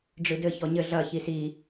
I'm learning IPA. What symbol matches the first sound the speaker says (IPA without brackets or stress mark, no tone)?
ɖ͡ʐ